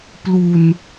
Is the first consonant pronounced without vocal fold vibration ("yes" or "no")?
yes